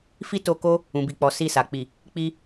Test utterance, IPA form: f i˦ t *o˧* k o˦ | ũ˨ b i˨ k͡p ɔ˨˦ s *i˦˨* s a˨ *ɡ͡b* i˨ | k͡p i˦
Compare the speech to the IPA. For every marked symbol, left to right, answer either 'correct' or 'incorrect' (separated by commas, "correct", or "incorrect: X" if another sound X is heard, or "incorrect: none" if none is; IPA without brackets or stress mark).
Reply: correct, correct, incorrect: k͡p